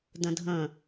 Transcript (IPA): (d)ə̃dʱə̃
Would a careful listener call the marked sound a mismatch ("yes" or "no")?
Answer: no